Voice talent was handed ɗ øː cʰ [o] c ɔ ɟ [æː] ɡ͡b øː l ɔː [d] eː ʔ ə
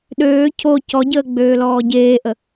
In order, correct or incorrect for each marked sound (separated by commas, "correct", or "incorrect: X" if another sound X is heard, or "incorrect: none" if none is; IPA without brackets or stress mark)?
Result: correct, incorrect: əː, incorrect: ɟ